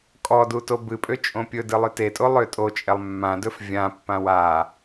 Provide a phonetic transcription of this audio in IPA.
kʼɔdu tobɨpʼø t͡ʃʼõpʲɵdɨ lˠøtetʼo lˠøtʼot͡ʃʼɛlˠ mːãdɵf vʲãpːãw a

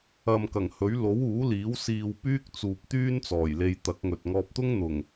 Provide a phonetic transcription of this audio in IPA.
ɐ˨mkɐ˨˩ŋhɵ˨˥ɥ lo˨˥wuː˨˥liː˨˥w siː˨w pyː˥k̚t͡suː˨p̚ t̪yː˥nt͡sɔː˨˩jle˧j t̪ɐ˨˥k̚ŋɵ˨t̚ ŋɔː˧p̚t̪ʊ˥ŋn̪ʊ˨˩ŋ

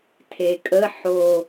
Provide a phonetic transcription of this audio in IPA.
tʰekʼə ħo

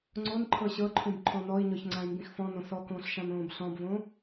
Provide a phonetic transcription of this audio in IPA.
ŋ͡ǀonǃʰɤ ɕɤǃʰũb ǃʰɔ̃nɔi̯ɲɔç ŋ͡ǀãy̯mbĩxfɔ̃nõ sɔkõːɬ ʃãnõːbɬɔ̃bvõ

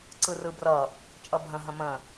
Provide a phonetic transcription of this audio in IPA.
ǀɯrɯbrʌ | t͡ʃʼʌbʱə̃ ɦə̃mə̃

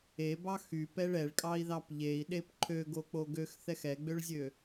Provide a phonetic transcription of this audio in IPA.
ebɑ xypɛɭ ɛɭkʼɑi̯ðɑp ʎei̯ɗep ǃʰøɡok͡po ɡøxθɛx ɛɡ͡bøɭzʲø

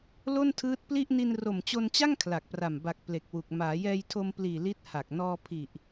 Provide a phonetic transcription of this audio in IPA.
lo˥˩ntʰɯː˦˥t̚pli˥˩ʔ ni˧nro˨˩mt͡ɕo˧nt͡ɕa˥˩ŋ kʰla˨˩k̚pra˨˩m ba˨˩k̚ ple˨˩k̚wu˨˩k̚ maː˩˦jɛː˧jtʰo˧mpliː˨˩ li˦˥t̚ha˨˩k̚ nɔː˧pʰi˨˩ʔ

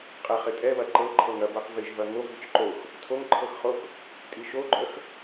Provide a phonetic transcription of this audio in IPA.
qʼɛχɪtʼɛβɐ ǃɤ ǃʰɤŋɐ bɤqvɪʒ vɐŋov it͡ʃǃox | tʰoŋǃʰɤxχox | tʼiʃoɡ͡ǃœx

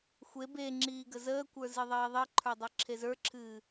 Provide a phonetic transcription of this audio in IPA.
xʷe beŋ͡ǁiː ɡəzəːkʷə˞ zɨðˤiːðˤiǃʰə˞ dˤə˞ǁʰezə˞ǁʰɨː

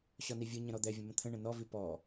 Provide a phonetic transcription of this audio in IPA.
ɕɔnivʲɯɲə̃ ɾɔd̪ɛvʲə̃ mə̃t̪ʰə̃ɳə̃ nɔvi pɔ

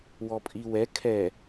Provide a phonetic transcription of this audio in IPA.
wɔpʼiwɛ kʰɛ

